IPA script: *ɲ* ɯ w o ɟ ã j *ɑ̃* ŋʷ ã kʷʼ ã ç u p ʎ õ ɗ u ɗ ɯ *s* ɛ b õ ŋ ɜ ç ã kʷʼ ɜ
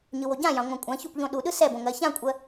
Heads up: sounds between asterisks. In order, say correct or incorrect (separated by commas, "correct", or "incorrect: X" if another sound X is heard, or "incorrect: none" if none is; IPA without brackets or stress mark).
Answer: correct, correct, correct